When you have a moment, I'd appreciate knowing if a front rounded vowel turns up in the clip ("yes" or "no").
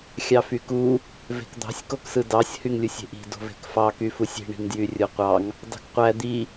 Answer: yes